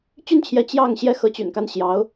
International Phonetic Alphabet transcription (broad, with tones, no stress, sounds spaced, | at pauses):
t͡ɕ y˥˩ n t͡ɕʰ j ɛ˧˥ t͡ɕ j ɑ˥˩ ŋ ɕ j ɛ˥ x ɤ˧˥ t͡ɕ y̰˨˩ n k a˥˩ n ɕ j ɑ˧˥ ʊ̯